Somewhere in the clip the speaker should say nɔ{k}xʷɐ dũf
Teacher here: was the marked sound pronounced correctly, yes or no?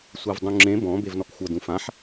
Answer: yes